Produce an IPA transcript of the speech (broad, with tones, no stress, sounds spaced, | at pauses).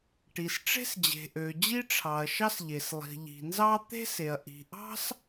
ʈ i˩ s ʈ͡ʂ e̤˥ s d͡ʑ e̤˩ ʔ ø˩ d͡ʑ i˥ ʈ͡ʂʰ ɑ˩ ɐ̯ ʃ ɑ˥ s ʎ e˩ s lˠ i̤˩ ʎ i̤˩ n z ɑ˥ t̪ e̤˥ s e˩ ɐ̯ ʔ i̤˩ ʔ ɑ̤˥ s